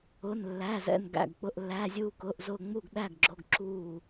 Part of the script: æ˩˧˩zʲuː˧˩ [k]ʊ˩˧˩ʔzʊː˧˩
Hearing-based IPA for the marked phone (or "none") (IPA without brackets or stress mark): k